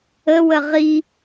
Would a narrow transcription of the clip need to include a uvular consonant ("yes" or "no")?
yes